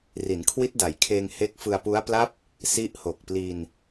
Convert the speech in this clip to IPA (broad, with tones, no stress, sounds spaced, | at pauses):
r i˩˦ n kʰ w i˦˥ t̚ d a˩˦ j kʰ eː˧ ŋ h e˦˥ k̚ f ɯ˧ a̯ p u˦˥ a̯ p l a˦˥ p̚ | s i˦˥ ʔ h o˨˩ k̚ p l i˧ n